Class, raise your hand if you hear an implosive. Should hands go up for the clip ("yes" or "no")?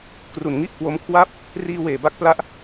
no